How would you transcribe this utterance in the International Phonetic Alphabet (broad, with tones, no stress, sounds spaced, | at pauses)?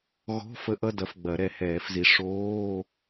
ɣ ɔ̤˧˥˧ f ə˦˥ ʔ ʌ˧˥˧ d ɐ˨˦ f ɡ͡b ɐ˨˩˦ ɾ ɛ˨˩˦ h ɛː˨˩˦ f z i˨˦ ʂ oː˧˥˧